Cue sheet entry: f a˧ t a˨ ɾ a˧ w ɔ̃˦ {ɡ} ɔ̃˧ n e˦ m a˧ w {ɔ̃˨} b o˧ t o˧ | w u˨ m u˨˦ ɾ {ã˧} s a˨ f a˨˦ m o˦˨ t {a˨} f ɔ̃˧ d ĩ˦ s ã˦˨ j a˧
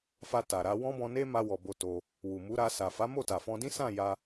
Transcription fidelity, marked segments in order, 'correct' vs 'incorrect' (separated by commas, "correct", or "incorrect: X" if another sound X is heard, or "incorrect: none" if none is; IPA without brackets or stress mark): incorrect: b, incorrect: ɔ˨, incorrect: a˧, correct